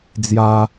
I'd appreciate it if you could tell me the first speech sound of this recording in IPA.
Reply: d͡z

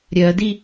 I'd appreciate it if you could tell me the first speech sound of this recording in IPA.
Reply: ɾʲ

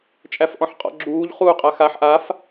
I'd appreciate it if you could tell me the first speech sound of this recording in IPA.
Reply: t͡ʃʼ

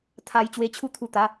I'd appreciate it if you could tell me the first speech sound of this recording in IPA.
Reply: t̪ʰ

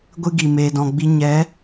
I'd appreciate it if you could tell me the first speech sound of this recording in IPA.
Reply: ɡʷ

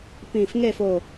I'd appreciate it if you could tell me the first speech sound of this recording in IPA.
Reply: p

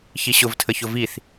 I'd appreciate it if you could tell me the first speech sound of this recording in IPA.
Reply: ç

